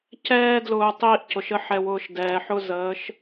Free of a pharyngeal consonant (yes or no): no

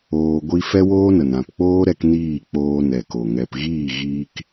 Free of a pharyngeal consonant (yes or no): yes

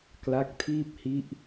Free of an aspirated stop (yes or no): no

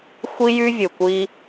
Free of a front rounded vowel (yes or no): no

